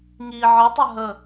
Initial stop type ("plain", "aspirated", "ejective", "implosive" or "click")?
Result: plain